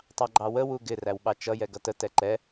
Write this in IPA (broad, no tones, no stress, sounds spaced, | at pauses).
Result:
tˤ ɑ ɡ͡ǃ ɑ w ə w u ɡ ɪ r æ w ɓ ɑ t͡ʃ ʌ j ɛ ɡ ʌ t ə t ɛ ǃ ɛ